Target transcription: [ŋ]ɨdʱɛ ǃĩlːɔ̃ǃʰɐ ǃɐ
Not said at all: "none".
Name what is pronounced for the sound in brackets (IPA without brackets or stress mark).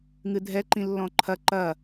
ŋ